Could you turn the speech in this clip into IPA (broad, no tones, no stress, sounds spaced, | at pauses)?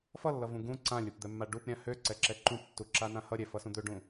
f ʌ lː ʌ v ũ ɡ ũ ǀ ã lʲ u p d̪ ɛ mː a ɖ u p ɾʲ ã h ø ǀ ɛ ǁ ɛ ǃ ũ p tː u ǁ a n ã h ʌ ɾʲ ɛ f ʌ s ũ d̪ ø ɖ ũ